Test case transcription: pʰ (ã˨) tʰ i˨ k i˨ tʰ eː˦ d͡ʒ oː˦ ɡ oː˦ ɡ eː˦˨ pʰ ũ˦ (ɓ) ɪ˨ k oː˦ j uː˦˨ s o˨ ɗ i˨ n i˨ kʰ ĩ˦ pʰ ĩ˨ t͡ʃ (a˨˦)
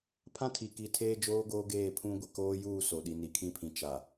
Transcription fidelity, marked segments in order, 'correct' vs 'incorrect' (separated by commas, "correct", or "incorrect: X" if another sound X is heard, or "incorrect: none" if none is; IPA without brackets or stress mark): incorrect: ã˦, incorrect: ɡʷ, incorrect: a˨